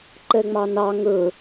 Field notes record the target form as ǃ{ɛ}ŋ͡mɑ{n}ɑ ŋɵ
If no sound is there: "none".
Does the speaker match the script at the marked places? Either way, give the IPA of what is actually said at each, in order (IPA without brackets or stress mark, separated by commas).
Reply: ɛ, n